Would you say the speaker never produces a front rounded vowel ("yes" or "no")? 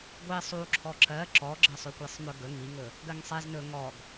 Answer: no